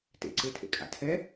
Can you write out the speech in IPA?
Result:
tḛǀetʰḛ kʼa̰tʰɛ

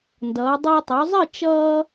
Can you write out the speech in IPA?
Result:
ndʌː˩˧ dˤʌː˧tˤo˩˧zˤɨ˥˧ t͡ʃʌː˧

